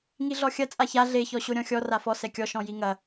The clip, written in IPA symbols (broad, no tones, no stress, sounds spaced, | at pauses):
ŋ i ɮ ɔ xʲ ɐ t͡sʼ a ç a ɮ e ç ɔ ɕ o ɾʲ ɔ̃ xʲ ɔ r a f ɔ s ɛ kʲ ɔ ʃ ɔ̃ j i ŋ ɐ